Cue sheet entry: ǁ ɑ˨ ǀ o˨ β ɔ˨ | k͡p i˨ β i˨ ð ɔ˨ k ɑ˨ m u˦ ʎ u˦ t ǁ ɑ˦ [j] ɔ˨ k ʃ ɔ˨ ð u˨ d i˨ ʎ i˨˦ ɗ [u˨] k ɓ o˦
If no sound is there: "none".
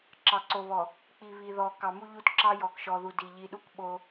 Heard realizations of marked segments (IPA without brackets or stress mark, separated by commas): j, u˦